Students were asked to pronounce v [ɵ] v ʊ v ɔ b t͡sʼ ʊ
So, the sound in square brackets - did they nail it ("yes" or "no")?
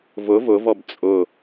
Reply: no